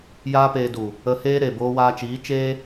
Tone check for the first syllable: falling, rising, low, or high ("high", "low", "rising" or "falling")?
high